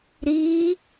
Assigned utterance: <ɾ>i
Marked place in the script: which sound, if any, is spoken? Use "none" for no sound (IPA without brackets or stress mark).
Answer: ɾ